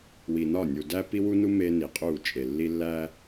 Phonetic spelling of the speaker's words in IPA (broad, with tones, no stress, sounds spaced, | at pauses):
w i˨ n ɒ˦˨ nʲ u˨ d æ˦ p i˦ w u˦ n u˦ m e˦ n i˨ qʼ u˦˨ t͡ʃʼ e˨ lː i˦ lː æ˦